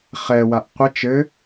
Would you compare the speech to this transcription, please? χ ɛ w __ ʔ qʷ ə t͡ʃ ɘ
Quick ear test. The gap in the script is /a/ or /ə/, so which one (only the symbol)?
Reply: a